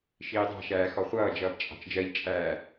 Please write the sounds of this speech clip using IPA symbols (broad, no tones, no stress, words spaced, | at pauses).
ʃiːdˤɑ̤ʃæː xɔχʷʌːd͡ʒʌːb t͡ʃʼɑ̤t͡ʃd͡ʒɜʎt͡ʃʼæː